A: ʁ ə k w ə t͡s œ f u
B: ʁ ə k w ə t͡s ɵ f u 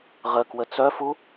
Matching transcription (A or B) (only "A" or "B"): A